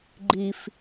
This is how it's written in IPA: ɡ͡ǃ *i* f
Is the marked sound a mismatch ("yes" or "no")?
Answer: no